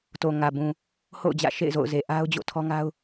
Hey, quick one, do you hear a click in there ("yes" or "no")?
no